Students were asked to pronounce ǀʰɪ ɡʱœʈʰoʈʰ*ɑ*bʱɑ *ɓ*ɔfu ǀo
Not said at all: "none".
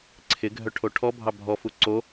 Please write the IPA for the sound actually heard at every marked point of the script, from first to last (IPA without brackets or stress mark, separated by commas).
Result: ɔ, bʱ